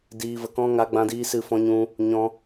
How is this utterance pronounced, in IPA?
d iː˧ v ə˧ k ɔ̃˦ ŋ a˧ ɡ͡b ã˧ d iː˧ s ɨ˧ f ɔ̃˧ ɲ ũ˧ | ɲ ɔ̃˧

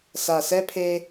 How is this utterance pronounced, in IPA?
s a˨ s ɛ˦ pʰ e˦

